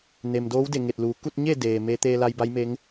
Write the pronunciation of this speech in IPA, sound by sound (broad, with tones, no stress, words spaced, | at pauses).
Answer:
ne˩m doː˧˥wde˧˩ ŋe˧˩t̚luː˩ ku˥˨t̚ɲe˥˨ deː˩me˧˥ t̪eː˧la˧jba˧˥jme˧˥ŋ